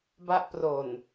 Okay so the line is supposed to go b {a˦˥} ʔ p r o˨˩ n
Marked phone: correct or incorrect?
correct